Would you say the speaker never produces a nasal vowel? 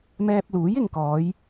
yes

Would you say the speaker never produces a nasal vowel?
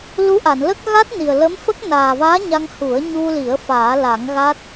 yes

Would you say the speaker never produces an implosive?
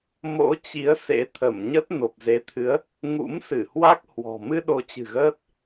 no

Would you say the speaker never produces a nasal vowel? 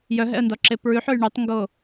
yes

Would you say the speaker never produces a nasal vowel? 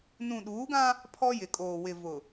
no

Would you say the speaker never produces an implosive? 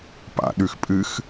no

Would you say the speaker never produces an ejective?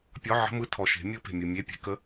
yes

